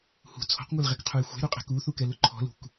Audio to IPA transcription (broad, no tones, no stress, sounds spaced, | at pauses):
h ṳ t͡sʰ ɔ̤ q ŋʷ ɛ l ʁ ɛ k qʰ u j xʷ ɛ̤ ɾ u qʼ ɛ̤ k u θ u k ɛ l ʊ ǃʰ ɔ̤ l ṳ k